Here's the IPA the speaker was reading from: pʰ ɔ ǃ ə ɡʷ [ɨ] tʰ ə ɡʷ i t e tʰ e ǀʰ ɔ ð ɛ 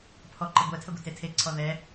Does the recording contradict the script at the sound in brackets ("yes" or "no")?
yes